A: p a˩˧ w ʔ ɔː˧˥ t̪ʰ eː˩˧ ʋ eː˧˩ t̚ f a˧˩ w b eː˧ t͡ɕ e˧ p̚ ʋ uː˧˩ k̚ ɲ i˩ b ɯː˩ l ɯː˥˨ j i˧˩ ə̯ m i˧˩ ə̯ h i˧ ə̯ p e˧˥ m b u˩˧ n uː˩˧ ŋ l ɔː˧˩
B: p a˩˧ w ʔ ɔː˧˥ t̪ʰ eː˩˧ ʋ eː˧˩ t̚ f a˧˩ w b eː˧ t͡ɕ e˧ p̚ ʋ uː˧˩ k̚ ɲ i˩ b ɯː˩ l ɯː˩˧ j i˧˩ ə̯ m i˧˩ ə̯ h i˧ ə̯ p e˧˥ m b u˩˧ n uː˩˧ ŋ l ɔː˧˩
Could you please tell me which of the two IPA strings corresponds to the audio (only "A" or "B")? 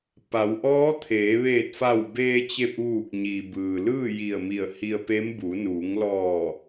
A